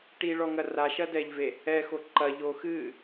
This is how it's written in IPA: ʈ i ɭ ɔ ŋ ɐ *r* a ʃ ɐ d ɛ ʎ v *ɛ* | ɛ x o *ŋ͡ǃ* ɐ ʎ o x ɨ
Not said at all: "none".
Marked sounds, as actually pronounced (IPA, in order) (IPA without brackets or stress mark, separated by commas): r, e, ǃ